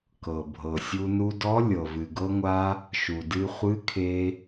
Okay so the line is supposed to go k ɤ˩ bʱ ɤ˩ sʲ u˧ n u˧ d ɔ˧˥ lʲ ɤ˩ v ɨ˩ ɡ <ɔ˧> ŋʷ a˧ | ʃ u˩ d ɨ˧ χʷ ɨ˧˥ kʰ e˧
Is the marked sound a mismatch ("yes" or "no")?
yes